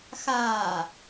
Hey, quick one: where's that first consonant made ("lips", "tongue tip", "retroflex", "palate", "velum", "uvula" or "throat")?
velum